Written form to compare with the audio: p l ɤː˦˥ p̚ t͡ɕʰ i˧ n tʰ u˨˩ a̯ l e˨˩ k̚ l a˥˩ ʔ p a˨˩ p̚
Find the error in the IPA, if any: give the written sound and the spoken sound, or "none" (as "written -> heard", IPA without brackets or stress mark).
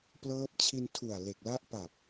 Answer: none